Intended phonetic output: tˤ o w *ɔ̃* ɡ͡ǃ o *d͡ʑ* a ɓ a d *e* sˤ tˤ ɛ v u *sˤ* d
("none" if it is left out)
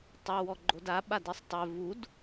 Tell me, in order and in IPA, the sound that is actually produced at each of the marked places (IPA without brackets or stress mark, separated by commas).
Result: ɔ, d, i, none